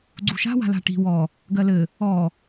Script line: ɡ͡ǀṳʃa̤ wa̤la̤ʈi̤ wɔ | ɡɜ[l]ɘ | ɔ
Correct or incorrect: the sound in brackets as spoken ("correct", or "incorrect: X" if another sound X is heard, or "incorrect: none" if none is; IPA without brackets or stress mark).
correct